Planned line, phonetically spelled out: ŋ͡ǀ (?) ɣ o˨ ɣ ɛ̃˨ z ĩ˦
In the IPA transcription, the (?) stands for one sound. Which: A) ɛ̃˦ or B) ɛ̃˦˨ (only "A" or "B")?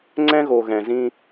A